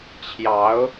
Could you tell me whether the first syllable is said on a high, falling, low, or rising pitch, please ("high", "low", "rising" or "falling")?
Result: rising